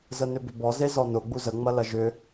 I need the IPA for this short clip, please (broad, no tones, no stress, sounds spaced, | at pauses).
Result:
z ə n ʏ b ʏ b ɔ z e z ɔ n ʊ ɡ͡b u z ə ŋ͡m ɐ l ɐ ʒ ʏ